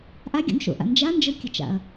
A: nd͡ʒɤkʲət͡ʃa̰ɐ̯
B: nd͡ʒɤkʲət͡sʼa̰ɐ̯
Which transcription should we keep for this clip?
A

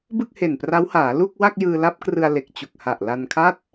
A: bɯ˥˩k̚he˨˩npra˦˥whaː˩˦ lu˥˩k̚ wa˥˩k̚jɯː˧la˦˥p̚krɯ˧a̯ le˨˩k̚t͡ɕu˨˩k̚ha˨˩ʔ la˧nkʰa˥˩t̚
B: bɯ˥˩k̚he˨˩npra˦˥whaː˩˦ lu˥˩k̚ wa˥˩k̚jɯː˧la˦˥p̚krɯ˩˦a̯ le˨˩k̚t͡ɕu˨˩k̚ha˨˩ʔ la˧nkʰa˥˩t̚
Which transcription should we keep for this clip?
A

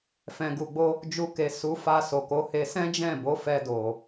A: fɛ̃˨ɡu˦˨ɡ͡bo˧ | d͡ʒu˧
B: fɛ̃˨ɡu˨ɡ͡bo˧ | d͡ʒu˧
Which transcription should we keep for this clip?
B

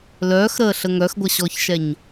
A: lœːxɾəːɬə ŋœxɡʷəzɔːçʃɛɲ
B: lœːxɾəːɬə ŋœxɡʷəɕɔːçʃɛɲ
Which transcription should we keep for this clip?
B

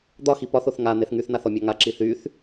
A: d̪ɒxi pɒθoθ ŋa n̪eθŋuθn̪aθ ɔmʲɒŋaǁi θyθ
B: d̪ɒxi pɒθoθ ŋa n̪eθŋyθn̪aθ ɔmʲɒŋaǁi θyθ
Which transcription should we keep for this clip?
B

